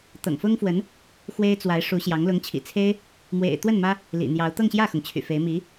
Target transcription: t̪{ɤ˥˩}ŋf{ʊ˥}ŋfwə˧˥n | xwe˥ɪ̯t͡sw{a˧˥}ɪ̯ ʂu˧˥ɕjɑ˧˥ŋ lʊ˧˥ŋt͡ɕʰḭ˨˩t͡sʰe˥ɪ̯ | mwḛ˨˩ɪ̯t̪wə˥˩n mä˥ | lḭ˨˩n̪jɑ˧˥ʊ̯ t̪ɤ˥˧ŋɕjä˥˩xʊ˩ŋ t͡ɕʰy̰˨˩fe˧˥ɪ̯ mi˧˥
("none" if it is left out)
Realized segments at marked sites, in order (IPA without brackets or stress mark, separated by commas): ɤ̰˨˩, ʊ˥, a˧˥